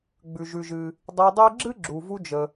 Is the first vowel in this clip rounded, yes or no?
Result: yes